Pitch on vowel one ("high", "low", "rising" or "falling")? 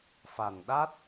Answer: low